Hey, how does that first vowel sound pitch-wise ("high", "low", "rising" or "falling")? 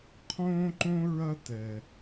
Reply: high